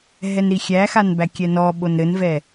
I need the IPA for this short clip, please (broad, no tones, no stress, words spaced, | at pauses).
ɦɛnɾixʲæxan bækʲɛnɔɓon ɾɘnvɛ